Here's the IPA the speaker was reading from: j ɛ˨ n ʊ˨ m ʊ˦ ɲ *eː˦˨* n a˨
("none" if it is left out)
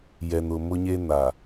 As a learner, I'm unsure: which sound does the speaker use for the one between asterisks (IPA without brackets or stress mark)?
eː˦